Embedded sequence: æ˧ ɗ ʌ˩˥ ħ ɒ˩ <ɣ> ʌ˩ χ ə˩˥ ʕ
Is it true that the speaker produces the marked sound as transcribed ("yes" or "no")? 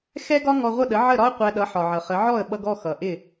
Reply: no